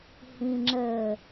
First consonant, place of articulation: glottal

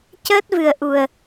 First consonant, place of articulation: palatal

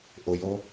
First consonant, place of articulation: glottal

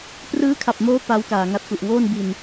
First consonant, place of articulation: labial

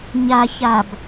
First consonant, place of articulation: palatal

